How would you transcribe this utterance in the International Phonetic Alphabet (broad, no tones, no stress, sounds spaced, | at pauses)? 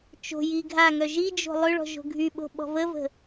t͡ʃ o̤ j i ɡʱ a ŋ œ ʒ i d͡ʒ o̤ lˠ ø ɭ ɔ̤ ʒ o̤ ɡʱ y ɓ o̤ ɓ ɔ̤ v ə v ə̤